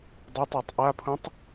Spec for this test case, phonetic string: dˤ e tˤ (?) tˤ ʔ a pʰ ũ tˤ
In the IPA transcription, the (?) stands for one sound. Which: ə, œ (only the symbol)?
œ